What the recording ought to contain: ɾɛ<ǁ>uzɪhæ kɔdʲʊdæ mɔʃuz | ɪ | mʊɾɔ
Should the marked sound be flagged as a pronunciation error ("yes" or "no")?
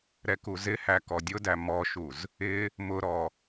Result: yes